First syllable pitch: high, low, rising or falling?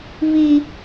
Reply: high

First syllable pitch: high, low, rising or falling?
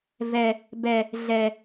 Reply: low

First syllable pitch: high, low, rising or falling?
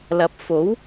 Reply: rising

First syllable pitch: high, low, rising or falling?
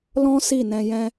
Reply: high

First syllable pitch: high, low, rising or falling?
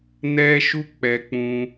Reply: high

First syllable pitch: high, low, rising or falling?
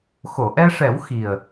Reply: low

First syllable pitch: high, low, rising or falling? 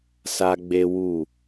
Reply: high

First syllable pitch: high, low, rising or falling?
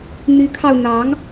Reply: rising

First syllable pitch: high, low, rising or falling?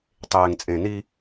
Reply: low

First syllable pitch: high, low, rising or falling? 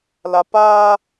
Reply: low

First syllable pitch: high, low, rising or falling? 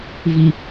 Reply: low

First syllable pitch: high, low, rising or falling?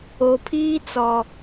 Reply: low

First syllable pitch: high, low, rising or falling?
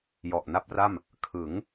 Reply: low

